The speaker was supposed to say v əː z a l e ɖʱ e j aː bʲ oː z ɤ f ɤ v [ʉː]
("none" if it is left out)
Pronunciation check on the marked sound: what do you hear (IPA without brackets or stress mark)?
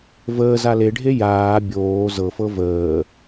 əː